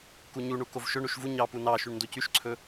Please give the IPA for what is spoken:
kuɲuɳu kovʃɵɳuʃ vu ɲɑ punɑʃyɳ ndocyʃǀʰɵ

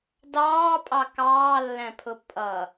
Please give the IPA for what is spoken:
dɑːpʼɑ kɑːlːæ̃pʰʊ pʼʌ

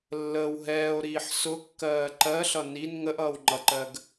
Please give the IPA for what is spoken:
lːəːw ɦɛːo̯ɾiːħ sʊkːɜː ǃɜɬʌ nin ŋəʔʌːw ŋ͡ǃʌǃɜɡ

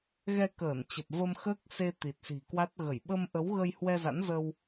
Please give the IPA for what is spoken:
ɣɛ˧kəː˧˩nt͡ɕə˨˩p̚ və˧mxəː˦˥k̚ se˧ t̪i˨˩t̚si̤˨˩kwa˦˥t̚ɣə˧˩j ɓə˧mʔə˨˦w ɣə˧jhwɛ˧za̰˧˥n zə˧w

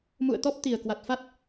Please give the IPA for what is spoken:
mṵ˧˨ə̯t̪ɔ˦˥p̚ t̪i˨˩ə̯ kwa˨˩t̚fa˦˥t̚

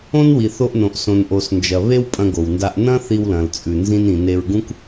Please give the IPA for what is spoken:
õ˥nwi˩θo˧ʔnõ˩ʔ sõ˩nʔo˩snd͡ʒɐ˩ βe˥wpʼɐ̃˧ɡo˩wnda˧ʔ nɐ̃˥ θi˧wlɐ̃˩lt͡sʼʉ˩ nzĩ˧nĩ˩ ne˧ɹɡũ˥k

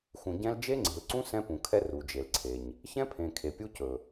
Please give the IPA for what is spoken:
xũ˨ɟɛ̃˦l d͡ʒe˦ŋ͡ǀe̤˨lǀũ˦ sɛ̃˦pũ˨kʰɛ˦ ru˨d͡ʒe˨lǀʰe˨ɲ | çɛ̃˦pʰẽ˨ kʰe˨pʲu˦cɵ˨

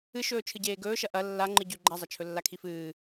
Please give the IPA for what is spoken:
ɨʃɵː t͡ʃʰɨɟeːɡɵːʃɐ ʔɐ lːa ŋ͡ǃɨɟʉ ɡ͡ǃazˤɐ t͡ʃʰɵlːakʰifɨː

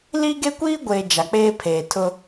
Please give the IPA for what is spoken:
liː˦ɡe˦kʷiː˦ɡʷeː˨ d͡ʒa˨k͡peː˦pʰeː˨tʰʊ˦

